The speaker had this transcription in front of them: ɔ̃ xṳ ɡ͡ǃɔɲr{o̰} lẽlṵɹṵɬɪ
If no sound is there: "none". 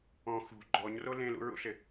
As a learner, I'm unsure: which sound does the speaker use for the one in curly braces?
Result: o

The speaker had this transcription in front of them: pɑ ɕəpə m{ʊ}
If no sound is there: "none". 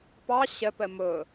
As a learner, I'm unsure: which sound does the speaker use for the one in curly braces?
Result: ʊ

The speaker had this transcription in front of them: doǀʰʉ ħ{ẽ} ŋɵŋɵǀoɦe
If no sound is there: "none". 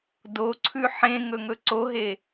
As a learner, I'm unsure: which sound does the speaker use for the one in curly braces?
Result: ẽ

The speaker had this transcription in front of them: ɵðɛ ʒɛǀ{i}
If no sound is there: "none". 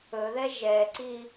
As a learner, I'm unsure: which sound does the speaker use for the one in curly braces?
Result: i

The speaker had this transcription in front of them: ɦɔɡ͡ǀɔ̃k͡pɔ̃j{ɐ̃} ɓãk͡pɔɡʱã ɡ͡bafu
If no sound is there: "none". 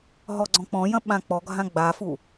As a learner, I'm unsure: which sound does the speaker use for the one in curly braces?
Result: ɐ̃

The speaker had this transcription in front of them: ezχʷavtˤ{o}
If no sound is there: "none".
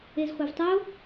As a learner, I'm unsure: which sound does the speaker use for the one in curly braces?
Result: o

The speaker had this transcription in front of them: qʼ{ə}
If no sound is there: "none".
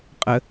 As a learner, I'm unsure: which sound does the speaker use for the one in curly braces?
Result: ə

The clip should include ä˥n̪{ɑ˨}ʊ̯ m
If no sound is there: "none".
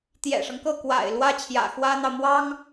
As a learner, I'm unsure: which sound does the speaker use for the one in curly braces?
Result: ɑ˨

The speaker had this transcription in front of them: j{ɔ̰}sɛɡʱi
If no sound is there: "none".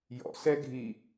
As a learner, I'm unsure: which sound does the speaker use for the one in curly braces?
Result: ɔ̰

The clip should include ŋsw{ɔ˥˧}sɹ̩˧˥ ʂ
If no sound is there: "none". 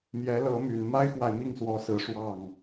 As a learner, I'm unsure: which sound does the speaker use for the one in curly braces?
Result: ɔ˧˥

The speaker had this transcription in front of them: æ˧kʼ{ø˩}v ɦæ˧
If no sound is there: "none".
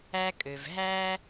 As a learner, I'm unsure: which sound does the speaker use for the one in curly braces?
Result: ø˩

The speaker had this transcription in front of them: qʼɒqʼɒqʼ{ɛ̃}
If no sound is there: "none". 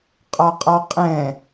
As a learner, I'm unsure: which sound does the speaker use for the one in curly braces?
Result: ɛ̃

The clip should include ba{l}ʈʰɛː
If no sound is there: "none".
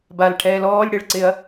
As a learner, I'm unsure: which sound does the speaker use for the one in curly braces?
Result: l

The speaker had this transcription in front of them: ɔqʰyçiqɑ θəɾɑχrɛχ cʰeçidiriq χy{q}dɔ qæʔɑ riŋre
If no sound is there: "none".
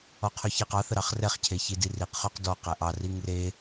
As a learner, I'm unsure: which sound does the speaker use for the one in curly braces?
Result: q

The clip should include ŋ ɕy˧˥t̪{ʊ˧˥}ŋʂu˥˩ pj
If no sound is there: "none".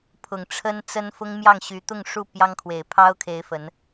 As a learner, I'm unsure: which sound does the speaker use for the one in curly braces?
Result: ʊ˥˧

